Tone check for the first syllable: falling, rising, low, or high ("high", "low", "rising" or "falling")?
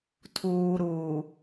low